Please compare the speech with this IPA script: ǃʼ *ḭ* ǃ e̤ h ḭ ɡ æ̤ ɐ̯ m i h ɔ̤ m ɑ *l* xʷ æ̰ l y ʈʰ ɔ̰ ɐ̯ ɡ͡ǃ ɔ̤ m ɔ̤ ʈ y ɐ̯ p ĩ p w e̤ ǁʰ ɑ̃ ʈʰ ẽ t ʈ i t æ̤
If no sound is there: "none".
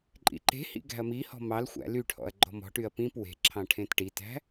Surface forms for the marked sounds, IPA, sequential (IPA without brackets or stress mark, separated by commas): ḭ, l